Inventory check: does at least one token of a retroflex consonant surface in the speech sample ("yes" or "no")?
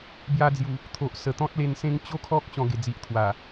no